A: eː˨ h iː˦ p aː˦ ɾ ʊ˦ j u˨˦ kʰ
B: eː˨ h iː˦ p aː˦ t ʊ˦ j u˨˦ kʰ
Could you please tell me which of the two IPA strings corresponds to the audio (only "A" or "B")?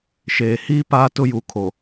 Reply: B